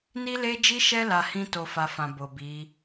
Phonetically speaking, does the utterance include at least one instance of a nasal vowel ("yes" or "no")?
yes